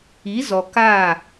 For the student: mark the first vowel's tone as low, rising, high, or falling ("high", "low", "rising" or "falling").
rising